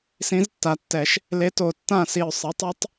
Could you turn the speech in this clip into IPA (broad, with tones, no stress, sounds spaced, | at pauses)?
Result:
s ĩ˧˥ z tː a˩˥ tː ɛ˨˩˦ ʃ | l e˧˥ t o˧˩ tː ã˥˨ s i˧˩ ʊ̯ sˤ i˩˥ tˤ ɛ˧˥ tˤ